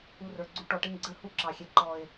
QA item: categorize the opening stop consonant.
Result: click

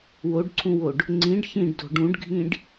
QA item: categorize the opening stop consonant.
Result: plain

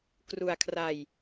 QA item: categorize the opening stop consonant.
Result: plain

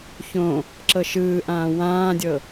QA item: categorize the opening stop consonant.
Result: click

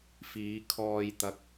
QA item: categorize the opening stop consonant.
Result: aspirated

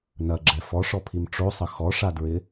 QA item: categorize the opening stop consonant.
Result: click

